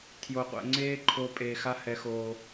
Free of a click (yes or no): no